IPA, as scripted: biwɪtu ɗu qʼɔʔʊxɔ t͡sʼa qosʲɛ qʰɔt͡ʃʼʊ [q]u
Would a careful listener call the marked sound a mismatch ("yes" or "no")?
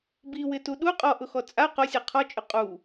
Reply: yes